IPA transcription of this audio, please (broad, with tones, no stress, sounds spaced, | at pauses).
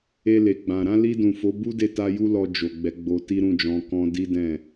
e˧ l e˨ ɡ͡b ã˨ ɾ ã˧ l i˧ d ũ˨ f o˨˦ b u˦ d e˦˨ t a˧ j u˧ l ɔ˧ d͡ʒ o˨ ɡ͡b ɛ˨˦ ɡ͡b o˧ t i˦ ɾ ũ˦˨ d͡ʒ ɔ̃˧ k ɔ̃˦ d i˦ d ɛ̃˦˨